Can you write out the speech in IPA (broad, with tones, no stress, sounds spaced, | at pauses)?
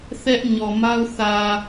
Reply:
θ ɛ˦ ʔ ɲ ɔ˨ m a˦ ʊ̯ θ ä˨